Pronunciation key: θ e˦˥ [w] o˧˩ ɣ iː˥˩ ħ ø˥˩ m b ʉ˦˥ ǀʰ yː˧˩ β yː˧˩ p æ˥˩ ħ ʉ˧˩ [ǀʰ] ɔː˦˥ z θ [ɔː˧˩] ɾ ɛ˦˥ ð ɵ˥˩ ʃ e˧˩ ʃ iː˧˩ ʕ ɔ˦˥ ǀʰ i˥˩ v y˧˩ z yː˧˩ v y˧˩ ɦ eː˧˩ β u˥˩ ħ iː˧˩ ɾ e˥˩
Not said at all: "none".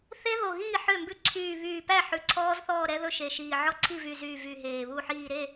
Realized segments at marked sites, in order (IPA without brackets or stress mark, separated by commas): ð, ǀʰ, ɔː˥˩